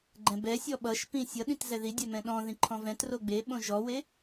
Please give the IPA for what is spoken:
ɡ͡ǃ ɛ̃ b ɛ sʲ ɔ ɓ ʌ ʃ p ĩ sʲ ʌ ɗ ĩ t z ɛ ð i dʲ ɛ m ɛ̃ ɗ ɔ̃ ð ĩ ǃʰ ɔ̃ v ɛ̃ t r o ɡ͡b e ɓ õ ʒ ɔ w e

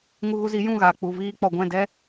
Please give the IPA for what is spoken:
ŋ u˧ ɣ u˧ z i˨˦ j ũ˦˨ ɣ aː˨ k͡p u˨ v iː˧ k͡p ɔ˨ ɡʷ ɛ̃˦˨ d ɛ˦

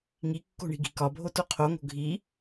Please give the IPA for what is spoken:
ŋ i kː o̤ ɳ i̤ ɡ i̤ k ɒ bʱ o t o qʰ o ŋ o̤ ɡʱ i

